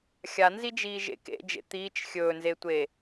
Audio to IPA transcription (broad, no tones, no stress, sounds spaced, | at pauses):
xʲ a n z i d͡ʒ iː ʒ ḛ k ḛ d͡ʒ ḛ t̪ iː t͡ʃ xʲ ɵː n z e tʷ e